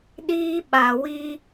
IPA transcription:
ɗiː˦ɓa˧wi˦

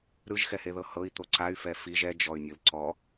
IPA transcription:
ɾɯʒxɛheðɤ hɤi̯t̪o ǀay̯fɛ fiʒ ɛd͡ʒɔy̯nʲɯl ǀɔ

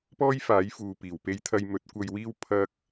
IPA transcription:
pɔː˥jfaː˨˥jfuː˨ piː˨˩wpe˥j t̪ʰɐ˧jmɵ˨˥t̚kʷɐ˧jwiː˥w pʰɐ˥k̚

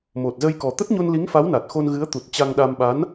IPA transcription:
mo˨˩t̚zə˧jkɔ˨˩ t̪ə˦˥t̚ ɲo˧nli˨˦ŋfa˨˦w na˨˩t̚ xo˧n ɣɨ˨˦ə̯ t̪u˨˩t̚t͡ɕa˧ŋɗa˧m ɓa˨˦n

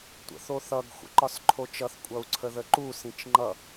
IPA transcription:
tʷə̰θoθʌɡ xʷə̰ǃɒsǃʰot͡ʃʌθ kʷʼʌu̯ǀʰəðəǃu sĩt͡ʃŋ͡ǃʌ

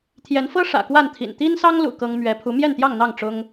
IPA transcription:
t̪ʰjɛ˨˦nfɤ˦ ʂä̰˨˩kwa˥˨nt̪ʰḭ˨˩n t̪i˦nsɑ˦ŋlṵ˨˩ kɤ˦ŋ mɥɛ˨˦ pʰu˨˦ mjɛ˥˨nt̪jɑ˥˨ŋn̪ɑ˥˨ŋ ʈ͡ʂʊ˦ŋ

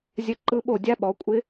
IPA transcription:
zʲə˦˥ǃɯ˦˥ɓo˥˧ dʲa˦˥ɓɔ˨˦kʷʼɪ˦˥

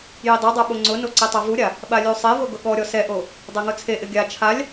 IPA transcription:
jidˤidˤɛ ɓoŋ͡ǀʊno ǀitˤavuɾʲa | ɓalʲusˤevo ɡʊɠɔɾʲɔ sɛʔo | dˤɛŋʊt͡sʰeʔɪ ɡʲa t͡ʃʰalʲ

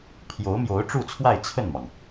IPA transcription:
pʰjo˧˥ʊ̯mjo˧˥ʊ̯ʈ͡ʂu˥˧t͡sʰwa˥˧ɪ̯ t͡sʰə˥˩nmɑ˩ŋ

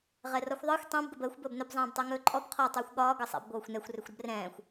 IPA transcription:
ʁɛrɔxʷðˤəːxʷ tˤɛ̃b ɡəbəːxʷ bəːbnɵb zˤɛ̃ːbtˤɛŋɵːǃʼɔb qʰɔ tˤəːxʷɠɒː ɡɤsˤɛ̰b ɡʷɤːxʷnɛxʷ rɵxʷɾəbrɛ̃ːxʷ

